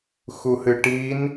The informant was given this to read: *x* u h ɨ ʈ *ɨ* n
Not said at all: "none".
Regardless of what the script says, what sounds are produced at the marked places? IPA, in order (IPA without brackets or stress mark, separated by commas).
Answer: x, i